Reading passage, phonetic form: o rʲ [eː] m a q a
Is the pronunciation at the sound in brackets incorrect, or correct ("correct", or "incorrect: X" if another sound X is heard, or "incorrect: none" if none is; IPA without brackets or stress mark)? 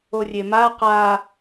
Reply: incorrect: e